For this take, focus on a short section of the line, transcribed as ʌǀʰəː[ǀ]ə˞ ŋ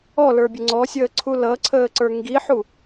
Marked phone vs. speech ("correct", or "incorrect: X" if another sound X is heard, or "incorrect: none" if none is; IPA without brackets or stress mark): correct